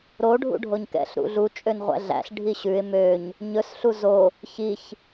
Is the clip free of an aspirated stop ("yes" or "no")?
yes